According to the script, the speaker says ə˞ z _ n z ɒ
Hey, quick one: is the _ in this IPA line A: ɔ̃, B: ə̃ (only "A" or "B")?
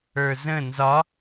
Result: B